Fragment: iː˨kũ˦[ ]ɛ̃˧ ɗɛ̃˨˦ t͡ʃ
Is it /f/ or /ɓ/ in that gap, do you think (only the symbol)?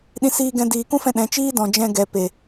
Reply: f